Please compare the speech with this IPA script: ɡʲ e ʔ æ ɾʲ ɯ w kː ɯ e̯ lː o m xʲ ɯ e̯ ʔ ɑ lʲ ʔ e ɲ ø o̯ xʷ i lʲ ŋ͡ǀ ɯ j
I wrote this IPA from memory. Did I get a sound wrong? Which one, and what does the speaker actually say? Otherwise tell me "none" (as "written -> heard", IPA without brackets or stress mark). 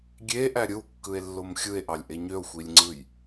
none